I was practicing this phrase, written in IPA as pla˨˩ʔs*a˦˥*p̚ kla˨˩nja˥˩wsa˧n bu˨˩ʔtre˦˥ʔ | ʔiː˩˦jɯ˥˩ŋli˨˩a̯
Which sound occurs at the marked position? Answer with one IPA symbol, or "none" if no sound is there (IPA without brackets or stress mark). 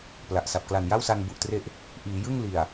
a˨˩